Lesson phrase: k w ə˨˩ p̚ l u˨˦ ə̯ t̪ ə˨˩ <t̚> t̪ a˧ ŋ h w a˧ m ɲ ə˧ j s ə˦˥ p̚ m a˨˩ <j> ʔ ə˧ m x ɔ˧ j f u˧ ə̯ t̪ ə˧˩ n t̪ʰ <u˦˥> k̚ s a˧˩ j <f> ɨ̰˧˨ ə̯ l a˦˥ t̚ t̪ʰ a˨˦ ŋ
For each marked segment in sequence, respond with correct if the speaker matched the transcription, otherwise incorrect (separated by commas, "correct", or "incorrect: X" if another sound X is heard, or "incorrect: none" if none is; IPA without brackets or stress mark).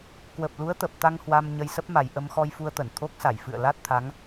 incorrect: p̚, correct, incorrect: o˦˥, correct